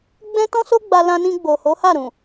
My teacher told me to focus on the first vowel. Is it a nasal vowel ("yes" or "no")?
yes